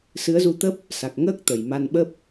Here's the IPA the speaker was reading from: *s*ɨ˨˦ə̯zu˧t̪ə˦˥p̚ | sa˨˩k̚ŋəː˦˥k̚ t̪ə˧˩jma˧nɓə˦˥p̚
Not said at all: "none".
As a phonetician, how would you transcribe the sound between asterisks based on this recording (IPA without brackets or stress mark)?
s